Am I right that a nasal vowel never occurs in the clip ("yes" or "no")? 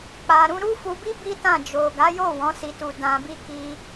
no